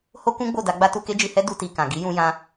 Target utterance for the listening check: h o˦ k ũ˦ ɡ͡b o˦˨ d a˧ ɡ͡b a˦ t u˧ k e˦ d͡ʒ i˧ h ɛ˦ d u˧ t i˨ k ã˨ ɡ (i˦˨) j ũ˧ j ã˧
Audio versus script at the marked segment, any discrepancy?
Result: yes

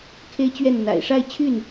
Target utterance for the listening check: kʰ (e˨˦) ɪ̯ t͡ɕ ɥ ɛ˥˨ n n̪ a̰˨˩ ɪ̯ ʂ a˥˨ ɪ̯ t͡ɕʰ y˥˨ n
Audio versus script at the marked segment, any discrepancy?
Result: yes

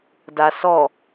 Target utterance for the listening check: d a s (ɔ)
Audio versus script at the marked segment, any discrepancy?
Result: no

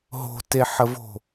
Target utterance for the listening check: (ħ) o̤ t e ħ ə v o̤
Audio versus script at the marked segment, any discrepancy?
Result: yes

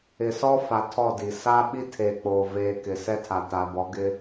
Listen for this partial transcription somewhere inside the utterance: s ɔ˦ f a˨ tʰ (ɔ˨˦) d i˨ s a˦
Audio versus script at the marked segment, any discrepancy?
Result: yes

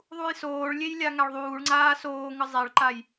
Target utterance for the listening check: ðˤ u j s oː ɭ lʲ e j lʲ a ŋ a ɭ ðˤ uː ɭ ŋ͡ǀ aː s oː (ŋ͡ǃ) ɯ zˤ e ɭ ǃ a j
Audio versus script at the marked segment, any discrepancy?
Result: yes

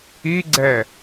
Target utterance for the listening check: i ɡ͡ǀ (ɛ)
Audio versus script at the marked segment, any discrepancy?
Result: no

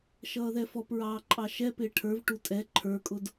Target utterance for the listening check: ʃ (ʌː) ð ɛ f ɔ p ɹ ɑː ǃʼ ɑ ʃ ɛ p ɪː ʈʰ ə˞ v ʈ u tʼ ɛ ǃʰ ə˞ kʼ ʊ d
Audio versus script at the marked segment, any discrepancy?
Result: no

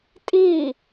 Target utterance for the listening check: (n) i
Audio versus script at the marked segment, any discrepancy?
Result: yes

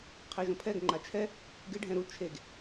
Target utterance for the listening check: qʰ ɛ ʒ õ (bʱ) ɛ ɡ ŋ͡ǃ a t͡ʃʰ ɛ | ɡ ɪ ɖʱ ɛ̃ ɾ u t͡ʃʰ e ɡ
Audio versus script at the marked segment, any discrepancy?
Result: yes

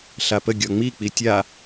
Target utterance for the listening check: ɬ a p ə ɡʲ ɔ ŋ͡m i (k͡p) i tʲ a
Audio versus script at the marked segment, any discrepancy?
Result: no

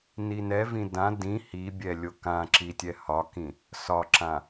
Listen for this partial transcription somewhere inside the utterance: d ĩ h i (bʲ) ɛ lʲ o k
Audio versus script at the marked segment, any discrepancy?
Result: no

